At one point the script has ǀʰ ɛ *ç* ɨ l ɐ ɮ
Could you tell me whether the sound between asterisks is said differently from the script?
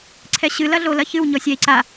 yes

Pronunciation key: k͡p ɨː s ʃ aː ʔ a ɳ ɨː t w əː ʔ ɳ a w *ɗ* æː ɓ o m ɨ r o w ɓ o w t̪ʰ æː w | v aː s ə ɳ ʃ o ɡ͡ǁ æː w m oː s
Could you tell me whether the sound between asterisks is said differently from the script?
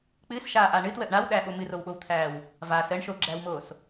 no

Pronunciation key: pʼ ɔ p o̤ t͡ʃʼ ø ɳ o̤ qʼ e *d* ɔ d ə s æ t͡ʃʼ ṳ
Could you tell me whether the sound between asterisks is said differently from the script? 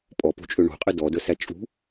no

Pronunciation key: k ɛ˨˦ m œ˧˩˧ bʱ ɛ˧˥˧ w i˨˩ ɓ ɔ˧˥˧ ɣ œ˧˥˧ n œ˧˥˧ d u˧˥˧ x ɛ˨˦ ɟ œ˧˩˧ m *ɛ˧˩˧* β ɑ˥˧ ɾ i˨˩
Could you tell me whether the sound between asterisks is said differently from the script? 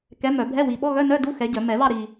no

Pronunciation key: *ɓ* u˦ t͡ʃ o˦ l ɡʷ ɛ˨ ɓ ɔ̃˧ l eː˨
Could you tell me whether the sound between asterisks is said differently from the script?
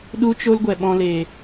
yes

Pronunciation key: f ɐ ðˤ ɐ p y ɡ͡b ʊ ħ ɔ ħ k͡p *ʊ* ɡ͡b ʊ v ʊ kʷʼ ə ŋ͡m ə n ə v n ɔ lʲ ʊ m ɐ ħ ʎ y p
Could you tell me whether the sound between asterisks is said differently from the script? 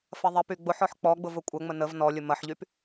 yes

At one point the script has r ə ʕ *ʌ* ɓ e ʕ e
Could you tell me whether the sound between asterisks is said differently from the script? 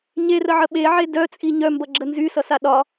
yes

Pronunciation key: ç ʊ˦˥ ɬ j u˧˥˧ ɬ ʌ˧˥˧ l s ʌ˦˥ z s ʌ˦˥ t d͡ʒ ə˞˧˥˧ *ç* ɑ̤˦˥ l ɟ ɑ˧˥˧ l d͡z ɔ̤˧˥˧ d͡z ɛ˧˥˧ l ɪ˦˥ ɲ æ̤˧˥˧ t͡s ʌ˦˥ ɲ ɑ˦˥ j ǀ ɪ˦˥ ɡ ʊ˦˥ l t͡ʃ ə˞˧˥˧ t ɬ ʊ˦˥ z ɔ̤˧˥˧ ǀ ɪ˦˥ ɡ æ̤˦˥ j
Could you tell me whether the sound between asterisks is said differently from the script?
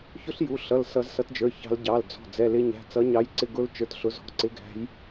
no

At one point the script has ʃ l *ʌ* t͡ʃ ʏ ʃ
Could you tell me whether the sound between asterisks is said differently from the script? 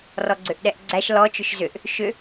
yes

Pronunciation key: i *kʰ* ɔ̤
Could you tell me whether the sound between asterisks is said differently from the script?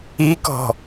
yes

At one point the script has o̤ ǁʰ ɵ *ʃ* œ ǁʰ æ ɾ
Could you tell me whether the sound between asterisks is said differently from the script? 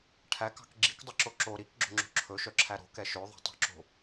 no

